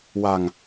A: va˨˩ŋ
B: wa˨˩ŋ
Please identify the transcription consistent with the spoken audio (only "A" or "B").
B